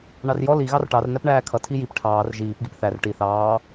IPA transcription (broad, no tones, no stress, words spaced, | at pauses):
ɳɑrjɔ li ɣɑrʈɑr næpɳæːkʰʌ tʰijip ʈʰɑːr ʒiːp ɡipθær ʈi θɑː